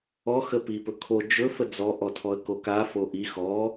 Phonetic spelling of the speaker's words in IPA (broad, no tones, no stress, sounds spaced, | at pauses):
ɔ x ə p i p ɵ kʰ o d͡ʒ ɵ f ə d͡z ɔ ʔ ɔ tʰ ɔ ə̯ k o k a f o ʔ i x ɔ